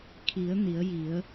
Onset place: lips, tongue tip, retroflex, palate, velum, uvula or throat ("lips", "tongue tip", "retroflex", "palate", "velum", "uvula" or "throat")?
velum